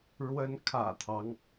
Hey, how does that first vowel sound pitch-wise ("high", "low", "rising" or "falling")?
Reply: rising